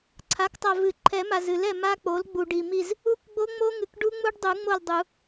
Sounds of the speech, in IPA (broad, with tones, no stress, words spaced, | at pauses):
ǀʰa˩˥ktˤa˨ vɨ˨˩˦ ǃʰɛ˨˩˦ ma˨zɨ˨˩˦lɛ˨ ma˦˥k͡po˩˥l ɡ͡bu˨ ɖi˨mi˦˨z | u˦˥kɡ͡bo˦˥ŋ͡mo˦˥ŋɨ˨k ɖu˦˥ŋ͡mu˦˥ɖdˤu˨˩˦ŋ͡mo˦˨l dˤu˨˩˦